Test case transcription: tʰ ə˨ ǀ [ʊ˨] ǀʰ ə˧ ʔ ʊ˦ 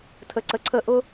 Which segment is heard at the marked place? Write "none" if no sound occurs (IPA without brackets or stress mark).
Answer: ə˨